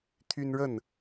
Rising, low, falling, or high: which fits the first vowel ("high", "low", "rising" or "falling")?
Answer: high